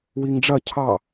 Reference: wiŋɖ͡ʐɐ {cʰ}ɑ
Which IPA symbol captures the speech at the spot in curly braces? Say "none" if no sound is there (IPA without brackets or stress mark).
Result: cʰ